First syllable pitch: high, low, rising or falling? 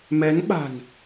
rising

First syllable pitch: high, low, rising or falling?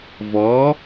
rising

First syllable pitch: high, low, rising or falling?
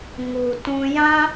low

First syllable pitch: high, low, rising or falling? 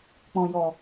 low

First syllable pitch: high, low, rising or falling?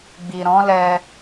low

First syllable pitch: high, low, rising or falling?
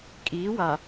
rising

